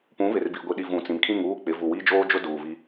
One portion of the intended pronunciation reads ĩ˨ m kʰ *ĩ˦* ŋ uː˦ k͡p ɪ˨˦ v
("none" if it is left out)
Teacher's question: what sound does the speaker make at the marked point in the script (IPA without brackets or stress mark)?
ĩ˦˨